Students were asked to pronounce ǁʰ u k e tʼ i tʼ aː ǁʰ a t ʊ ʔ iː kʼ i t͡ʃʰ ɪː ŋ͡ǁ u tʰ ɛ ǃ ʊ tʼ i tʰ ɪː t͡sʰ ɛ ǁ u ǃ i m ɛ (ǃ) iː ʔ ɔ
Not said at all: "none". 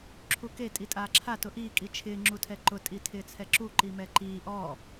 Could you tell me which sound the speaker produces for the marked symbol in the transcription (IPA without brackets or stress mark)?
ǃ